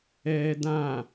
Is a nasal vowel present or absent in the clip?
present